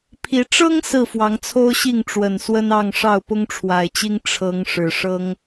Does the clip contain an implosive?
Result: no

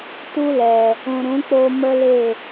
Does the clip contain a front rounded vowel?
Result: no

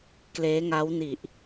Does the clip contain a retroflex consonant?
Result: no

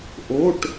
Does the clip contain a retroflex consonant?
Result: yes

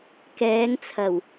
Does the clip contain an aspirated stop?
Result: yes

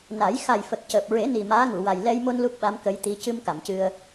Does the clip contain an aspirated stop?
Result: no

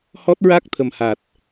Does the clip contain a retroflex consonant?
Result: no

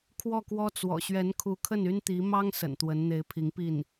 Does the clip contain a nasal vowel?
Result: no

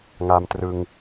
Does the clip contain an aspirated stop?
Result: no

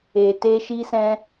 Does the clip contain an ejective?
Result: no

